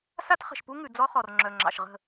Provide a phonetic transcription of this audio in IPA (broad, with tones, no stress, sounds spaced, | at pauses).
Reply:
s a˦ t χ ə̤˨ ʃ p u˦ ŋ ʉ˨ d͡z ɔ˦ χ ɔ˨ r ŋ͡ǁ œ˨ ŋ͡ǁ ɑ̰˨ ʃ ʁ ə̤˦˨